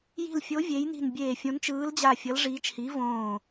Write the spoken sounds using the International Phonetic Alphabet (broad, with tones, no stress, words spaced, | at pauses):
ji̤˧˩lfʲo˨˦ vʲe˨˦jni̤˧˩n bʲeː˧˩ fʲõ˨˦nt͡ʃɯː˨˦ld͡ʑa˧˩ fʲʌ˨˦lʐiː˨˦t͡ʃ hi˨˦võː˧˩